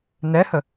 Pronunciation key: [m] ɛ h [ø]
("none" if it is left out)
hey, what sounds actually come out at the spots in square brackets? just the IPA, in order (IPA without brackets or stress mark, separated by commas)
n, ə